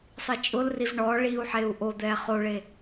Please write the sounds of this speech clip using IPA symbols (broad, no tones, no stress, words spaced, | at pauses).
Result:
sˤit͡ʃʼʊlriv ɳɔ ɭiu̯ħeu̯ ʔod̪ɛ χoɭe